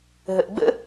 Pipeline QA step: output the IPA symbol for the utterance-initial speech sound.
ɦ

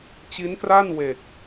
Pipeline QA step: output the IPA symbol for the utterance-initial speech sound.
t͡ɕ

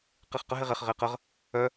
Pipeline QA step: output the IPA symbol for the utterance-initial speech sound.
q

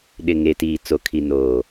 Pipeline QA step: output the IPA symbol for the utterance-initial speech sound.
ɗ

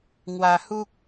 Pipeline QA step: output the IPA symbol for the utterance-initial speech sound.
ŋ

